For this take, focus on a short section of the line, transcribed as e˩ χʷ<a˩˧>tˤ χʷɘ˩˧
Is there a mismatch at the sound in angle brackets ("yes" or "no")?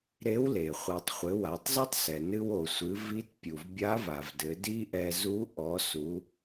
yes